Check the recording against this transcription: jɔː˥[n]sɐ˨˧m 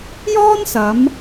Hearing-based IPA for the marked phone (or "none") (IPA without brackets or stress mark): n